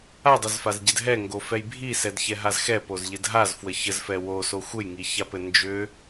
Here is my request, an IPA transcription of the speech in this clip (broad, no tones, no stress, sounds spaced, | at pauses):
a dˤ ʏ z f a z ɟ ɘ d ɦ ɛ ŋ ɡ o f ɛ j bʱ i s ɛ d ç ɛ ɦ a z x ɛ p o z ʎ ɘ d ɦ a z f w ə ç ə z f ɛ w o s o xʷ ɘ j ŋ i ç a p ɘ n d͡ʒ ʏ